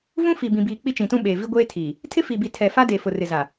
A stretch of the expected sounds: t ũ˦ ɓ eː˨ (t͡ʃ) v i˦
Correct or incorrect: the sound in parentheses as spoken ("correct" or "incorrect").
incorrect